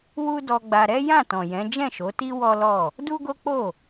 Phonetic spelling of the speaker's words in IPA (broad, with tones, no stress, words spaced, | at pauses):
wu˦dɔ˧ɡ͡ba˧ ɾɛ˦ jã˦˨tɔ̃˨jɛ̃˨˦ d͡ʒɛ̃˦˨ʃo˨˦ti˦ wɔ˦lɔ˦˨ | du˦ɡo˦k͡po˦˨